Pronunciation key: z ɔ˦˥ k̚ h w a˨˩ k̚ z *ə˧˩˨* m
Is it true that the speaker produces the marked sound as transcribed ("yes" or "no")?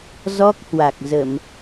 yes